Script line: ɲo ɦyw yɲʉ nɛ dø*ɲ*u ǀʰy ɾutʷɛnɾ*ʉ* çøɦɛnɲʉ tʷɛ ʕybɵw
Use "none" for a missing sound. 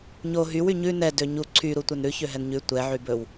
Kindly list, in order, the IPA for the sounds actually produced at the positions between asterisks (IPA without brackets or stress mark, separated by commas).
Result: ɲ, ʉ